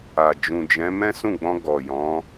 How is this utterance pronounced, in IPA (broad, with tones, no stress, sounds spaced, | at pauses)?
a˨ d͡ʒ ũ˨ d͡ʒ ɛ̃˨˦ m ɛ̃˦ s ũ˦˨ ɡ͡b ɔ̃˧ ɡ ɔ˨ j ɔ̃˨˦